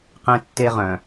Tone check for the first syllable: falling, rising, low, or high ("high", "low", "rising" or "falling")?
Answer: high